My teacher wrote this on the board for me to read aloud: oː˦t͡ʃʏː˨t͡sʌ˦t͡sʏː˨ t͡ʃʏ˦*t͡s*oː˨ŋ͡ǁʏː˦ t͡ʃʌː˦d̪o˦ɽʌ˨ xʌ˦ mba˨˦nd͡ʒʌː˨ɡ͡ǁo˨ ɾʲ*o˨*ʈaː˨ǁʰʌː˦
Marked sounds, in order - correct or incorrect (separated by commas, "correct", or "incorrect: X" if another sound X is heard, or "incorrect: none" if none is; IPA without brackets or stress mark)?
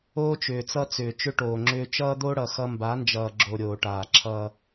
incorrect: ʈ, incorrect: oː˨